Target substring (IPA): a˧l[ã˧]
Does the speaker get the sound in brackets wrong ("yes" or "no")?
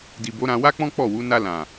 yes